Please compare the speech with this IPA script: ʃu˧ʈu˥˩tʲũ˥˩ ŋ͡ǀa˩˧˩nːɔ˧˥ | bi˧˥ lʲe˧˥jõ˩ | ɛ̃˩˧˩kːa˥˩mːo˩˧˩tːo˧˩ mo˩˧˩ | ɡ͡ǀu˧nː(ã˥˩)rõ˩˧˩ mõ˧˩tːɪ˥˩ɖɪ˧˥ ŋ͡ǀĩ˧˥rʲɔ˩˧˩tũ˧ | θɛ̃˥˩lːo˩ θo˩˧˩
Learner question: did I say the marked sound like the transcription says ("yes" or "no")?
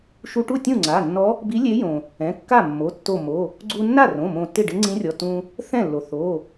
no